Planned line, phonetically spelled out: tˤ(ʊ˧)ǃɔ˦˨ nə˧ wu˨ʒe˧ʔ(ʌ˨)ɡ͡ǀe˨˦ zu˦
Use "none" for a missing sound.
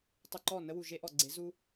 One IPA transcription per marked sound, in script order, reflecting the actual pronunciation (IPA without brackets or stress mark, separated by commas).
ʊ˧, ɔ˨